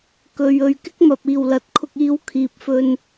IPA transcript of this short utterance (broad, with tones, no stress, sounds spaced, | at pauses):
k ɵ˨ ɥ ɵ˨ ɥ k ɪ˥ k̚ m ɐ˨ p̚ iː˨˩ w l ɐ˨˥ t̚ kʰ ʊ˧ k̚ iː˧ w kʰ iː˨ p̚ f ɵ˧ n